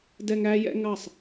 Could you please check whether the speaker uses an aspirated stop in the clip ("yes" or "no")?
no